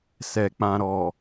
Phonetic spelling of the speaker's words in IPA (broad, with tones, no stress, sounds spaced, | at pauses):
s ɛ˨ k͡p ã˨ ɾ ɔ˨